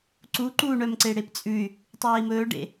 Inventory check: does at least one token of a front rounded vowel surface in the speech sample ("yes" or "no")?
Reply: yes